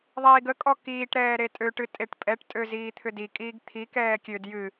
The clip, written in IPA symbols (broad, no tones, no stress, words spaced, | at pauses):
ðˤiːɡəkʼɔ kiːʈɾɛː ɾetʼøʈɨ tʼeʈpʼɛʈtʼø ziːt̪ʰʏdikʼiːɡ t̪ʰikɛː kʲød jɨ